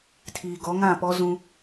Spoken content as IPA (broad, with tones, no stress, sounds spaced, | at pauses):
tʰ iː˨ ɡ ɔ˨˦ ŋ ã˦˨ p ɔ˦ z ũ˦